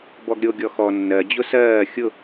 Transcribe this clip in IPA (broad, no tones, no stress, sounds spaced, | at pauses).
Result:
b ɔ ɡ ɾʲ o ɡʲ ɔ x ɔ nː ɜ d͡ʑ ʊ s ɜː xʲ ʊ